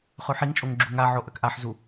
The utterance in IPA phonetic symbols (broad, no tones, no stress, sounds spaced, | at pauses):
χ ʉ ħ i ŋ t͡ʃʼ o ŋ ɡ͡ǁ u ŋ a ʕ o ʔ ɐ k ʔ a ħ z u